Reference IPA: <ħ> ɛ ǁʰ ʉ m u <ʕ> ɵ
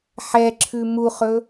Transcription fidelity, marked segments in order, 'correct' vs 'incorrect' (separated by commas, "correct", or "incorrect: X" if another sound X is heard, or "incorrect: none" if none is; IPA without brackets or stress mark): correct, incorrect: χ